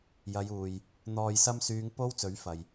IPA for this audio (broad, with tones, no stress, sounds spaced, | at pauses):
j ɐ˨˧ j uː˨ j | n̪ ɔː˨ j s ɐ˧ m s yː˨˧ ŋ p o˥ w t͡s ɵ˨˥ ɥ f ɐ˨ j